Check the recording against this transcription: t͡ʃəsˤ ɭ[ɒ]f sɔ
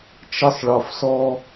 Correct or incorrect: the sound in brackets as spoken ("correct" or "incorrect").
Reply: correct